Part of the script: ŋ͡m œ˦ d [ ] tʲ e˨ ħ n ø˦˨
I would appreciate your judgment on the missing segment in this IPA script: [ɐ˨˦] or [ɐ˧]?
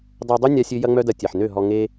ɐ˧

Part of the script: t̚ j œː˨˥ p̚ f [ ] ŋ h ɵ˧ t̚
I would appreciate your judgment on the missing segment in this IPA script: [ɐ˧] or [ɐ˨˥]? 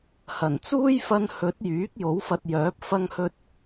ɐ˧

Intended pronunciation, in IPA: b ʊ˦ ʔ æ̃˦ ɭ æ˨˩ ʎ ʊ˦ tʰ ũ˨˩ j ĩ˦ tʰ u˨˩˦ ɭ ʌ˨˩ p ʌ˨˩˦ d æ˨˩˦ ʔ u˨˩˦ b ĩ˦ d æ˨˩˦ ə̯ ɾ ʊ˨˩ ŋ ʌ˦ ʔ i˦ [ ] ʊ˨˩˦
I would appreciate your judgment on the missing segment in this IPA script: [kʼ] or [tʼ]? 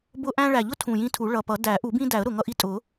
tʼ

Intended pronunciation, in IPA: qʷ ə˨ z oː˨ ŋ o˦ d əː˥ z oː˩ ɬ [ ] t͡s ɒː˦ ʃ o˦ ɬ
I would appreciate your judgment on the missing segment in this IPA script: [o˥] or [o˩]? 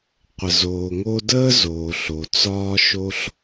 o˩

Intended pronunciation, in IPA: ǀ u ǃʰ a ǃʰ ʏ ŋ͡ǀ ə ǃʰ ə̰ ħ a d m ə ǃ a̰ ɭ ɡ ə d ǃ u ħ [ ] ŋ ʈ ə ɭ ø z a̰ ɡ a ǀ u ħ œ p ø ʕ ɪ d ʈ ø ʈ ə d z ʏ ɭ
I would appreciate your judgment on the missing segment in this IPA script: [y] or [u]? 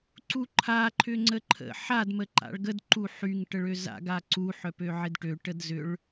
y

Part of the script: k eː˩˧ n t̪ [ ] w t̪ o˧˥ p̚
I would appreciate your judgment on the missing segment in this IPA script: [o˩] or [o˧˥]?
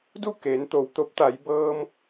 o˩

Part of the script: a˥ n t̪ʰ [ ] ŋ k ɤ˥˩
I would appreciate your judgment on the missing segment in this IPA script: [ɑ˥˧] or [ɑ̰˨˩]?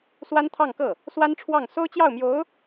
ɑ˥˧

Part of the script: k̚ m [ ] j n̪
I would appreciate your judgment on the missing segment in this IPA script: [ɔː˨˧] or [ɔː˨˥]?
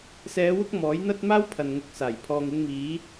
ɔː˨˥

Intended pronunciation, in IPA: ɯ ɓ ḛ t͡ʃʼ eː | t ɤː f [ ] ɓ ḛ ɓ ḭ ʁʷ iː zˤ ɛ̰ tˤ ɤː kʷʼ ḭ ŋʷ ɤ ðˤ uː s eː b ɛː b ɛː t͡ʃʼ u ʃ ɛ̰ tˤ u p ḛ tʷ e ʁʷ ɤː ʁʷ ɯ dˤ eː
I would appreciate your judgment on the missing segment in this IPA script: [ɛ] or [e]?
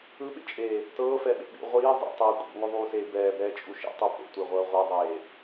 ɛ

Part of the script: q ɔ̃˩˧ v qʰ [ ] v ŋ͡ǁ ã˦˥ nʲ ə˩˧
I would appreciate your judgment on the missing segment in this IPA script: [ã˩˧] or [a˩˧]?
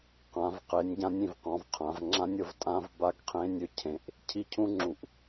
ã˩˧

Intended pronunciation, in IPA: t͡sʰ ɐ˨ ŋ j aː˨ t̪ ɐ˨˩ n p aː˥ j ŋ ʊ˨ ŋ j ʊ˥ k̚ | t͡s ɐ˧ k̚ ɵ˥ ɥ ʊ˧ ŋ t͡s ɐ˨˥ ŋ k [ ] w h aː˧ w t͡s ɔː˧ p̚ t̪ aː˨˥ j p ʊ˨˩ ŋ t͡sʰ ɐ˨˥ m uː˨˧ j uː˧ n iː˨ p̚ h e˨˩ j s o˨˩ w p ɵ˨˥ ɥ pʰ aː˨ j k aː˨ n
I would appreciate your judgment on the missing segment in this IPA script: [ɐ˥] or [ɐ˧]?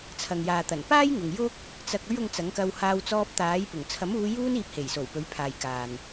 ɐ˧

